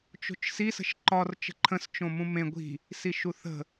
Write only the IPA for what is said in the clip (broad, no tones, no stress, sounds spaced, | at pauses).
t͡ʃ o̤ t͡ʃ s i s ə̤ ʃ ǃ ɒ r t͡ʃ ə̤ ǃʰ ə̃ s t͡ʃ õ m ũ m ẽ ɡʷ i̤ | s i ʃ u θ ə̤